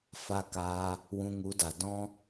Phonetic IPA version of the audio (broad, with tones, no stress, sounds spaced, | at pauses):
f a˧ k aː˧ | w ũ˧ ŋ u˨˦ d a˨ d ɔ̃˦